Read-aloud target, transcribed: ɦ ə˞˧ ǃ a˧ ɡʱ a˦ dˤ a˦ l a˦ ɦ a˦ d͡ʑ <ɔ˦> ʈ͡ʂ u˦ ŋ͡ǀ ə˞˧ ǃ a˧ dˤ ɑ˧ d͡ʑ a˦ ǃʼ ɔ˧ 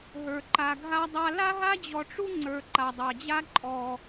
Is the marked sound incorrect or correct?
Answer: incorrect